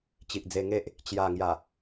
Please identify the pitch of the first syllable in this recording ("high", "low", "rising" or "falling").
low